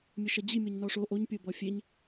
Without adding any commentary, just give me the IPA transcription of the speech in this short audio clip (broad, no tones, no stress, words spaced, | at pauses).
mʲəʃɐd͡ʑi mʲɔɲnɔʂo ʔoɲ pʲobɔfʲeɲ